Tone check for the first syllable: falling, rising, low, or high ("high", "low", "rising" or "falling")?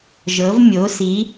rising